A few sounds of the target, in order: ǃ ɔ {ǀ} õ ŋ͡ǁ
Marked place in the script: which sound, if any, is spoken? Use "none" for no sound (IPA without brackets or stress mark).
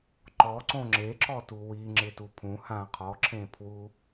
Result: ǀ